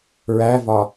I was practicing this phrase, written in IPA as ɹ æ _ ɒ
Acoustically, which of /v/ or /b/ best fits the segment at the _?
v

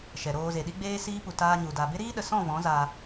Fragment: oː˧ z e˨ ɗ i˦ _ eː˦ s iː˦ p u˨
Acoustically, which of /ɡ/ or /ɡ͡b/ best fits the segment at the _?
ɡ͡b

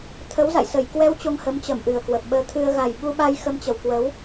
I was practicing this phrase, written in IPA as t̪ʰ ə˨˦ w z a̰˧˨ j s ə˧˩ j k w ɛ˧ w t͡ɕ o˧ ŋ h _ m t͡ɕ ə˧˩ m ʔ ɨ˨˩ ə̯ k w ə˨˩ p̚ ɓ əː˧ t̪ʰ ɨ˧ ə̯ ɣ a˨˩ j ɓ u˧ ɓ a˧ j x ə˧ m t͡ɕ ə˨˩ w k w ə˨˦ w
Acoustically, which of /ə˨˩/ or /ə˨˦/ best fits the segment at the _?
ə˨˦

